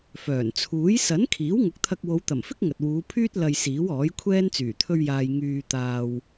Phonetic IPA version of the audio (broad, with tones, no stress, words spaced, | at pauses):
fœː˨˩n t͡sʰuː˨˥j sɐ˨˥n kʰiː˨˥wŋʊ˨˥k̚t̪ʰɐ˧k̚ wo˨˧wt̪ɐ˨˩mfɪ˥k̚ ŋɐ˨t̚wuː˨˧pʰyː˥t̚ lɐ˧j siː˨˥wɔː˨˥jkʷʰɛː˥n t͡syː˨˩t̪ʰɵ˧ɥjaː˨j ŋyː˨t̪aː˨w